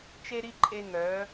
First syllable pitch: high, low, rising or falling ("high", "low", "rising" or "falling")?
high